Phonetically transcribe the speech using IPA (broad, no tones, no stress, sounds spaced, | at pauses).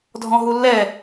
dʱ ɔ̃ ɦ u lː ɛ